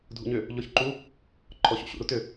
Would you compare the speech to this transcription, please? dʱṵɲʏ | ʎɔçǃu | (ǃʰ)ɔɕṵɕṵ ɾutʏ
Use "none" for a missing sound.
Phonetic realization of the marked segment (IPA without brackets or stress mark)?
ǃʰ